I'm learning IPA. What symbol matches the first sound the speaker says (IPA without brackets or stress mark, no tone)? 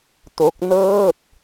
t